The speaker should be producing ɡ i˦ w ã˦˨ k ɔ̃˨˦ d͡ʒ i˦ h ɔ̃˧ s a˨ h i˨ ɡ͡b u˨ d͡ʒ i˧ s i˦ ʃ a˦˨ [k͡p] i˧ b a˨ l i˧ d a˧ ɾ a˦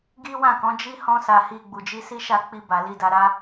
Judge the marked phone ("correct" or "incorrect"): correct